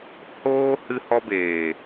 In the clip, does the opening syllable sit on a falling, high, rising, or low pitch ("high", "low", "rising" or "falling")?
high